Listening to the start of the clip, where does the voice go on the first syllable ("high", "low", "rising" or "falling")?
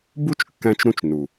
high